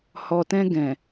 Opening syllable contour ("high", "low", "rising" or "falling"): low